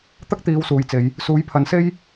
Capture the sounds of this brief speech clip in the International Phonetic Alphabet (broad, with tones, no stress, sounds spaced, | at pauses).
t̪ ɐ˥ k̚ t̪ iː˨˧ w s uː˨˩ j t͡s e˨˧ j | s uː˨˥ j pʰ ɐ˨˥ n s e˥ j